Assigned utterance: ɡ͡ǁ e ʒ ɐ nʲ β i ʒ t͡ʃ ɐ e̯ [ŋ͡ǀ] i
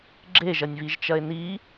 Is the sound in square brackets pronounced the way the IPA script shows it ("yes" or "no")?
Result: no